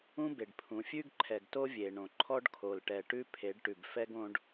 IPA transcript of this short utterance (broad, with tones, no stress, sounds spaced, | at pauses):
ũ˦ b e˨ ɖ pʰ ũ˨˦ fʲ ʉ˦ ɡ ǃʰ ɛ˨ ɡ t o˦ vʲ e˨ ɳ õ˨ ǃʰ ɔ˦ ɖ kʰ o˨ l ʈ ɛ˨ ʈ ʉ˦ pʰ e˨˦ ɖ ʈ ʉ˨ b f ɛ˦ ɡ õ˦ ɖ